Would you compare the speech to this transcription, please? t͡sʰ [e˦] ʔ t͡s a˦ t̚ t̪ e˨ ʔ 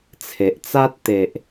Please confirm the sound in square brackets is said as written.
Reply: no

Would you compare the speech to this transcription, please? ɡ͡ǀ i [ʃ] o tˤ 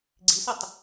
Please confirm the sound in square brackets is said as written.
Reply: no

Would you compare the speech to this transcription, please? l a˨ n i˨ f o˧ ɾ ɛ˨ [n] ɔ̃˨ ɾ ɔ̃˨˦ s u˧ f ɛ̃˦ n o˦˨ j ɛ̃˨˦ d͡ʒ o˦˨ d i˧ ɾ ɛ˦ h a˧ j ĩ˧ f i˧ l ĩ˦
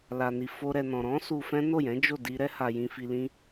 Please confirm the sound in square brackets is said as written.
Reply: yes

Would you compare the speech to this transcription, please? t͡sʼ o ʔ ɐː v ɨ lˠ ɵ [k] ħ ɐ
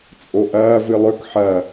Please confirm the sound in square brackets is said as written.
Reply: yes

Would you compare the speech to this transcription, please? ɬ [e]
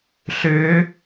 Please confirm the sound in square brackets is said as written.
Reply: no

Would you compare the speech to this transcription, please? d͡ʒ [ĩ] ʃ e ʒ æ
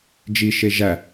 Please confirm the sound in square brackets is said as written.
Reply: no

